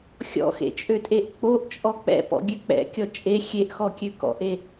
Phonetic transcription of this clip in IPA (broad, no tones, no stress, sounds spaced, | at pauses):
xʲ ɔ̰ x ḛ t͡ʃʼ ø tʼ e ʔ k͡p o ʔ t͡ʃʼ ɔ k͡p ɛ̰ p ɔ̰ ɡʲ ø k͡p ɛ̰ kʲ ɔ t͡ʃʼ e xʲ e ʔ x ɔ kʲ ø k ɔ̰ ʔ e